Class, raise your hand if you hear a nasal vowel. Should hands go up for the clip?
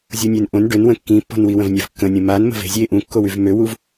yes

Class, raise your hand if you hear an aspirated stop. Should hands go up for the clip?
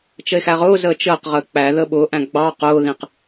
no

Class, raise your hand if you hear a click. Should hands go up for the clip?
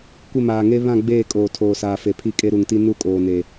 no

